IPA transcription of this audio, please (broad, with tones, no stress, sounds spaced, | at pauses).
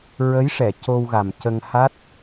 ɹ ə˧˥ j ʂ ɛ˨˩˨ c o˧ w ɣ a˨˩ m c ə˧ ŋ h a˦˥ t̚